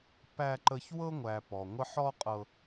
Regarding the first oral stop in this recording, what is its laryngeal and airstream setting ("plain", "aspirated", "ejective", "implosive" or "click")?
plain